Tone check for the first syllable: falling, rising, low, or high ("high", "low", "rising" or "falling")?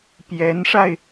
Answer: rising